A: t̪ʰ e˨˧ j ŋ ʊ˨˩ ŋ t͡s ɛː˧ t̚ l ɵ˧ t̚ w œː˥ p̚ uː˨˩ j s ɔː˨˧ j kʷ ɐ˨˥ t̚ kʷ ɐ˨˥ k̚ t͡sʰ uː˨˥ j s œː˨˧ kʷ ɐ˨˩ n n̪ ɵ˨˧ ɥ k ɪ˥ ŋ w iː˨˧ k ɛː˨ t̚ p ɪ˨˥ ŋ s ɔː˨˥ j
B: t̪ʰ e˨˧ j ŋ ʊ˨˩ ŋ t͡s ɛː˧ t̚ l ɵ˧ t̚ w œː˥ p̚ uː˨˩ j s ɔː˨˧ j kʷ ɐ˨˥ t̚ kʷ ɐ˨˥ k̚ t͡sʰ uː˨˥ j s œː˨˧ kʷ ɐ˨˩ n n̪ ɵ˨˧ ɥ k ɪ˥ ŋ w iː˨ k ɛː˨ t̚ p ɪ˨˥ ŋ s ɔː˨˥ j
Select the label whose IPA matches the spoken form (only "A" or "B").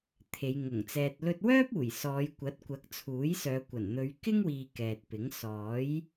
B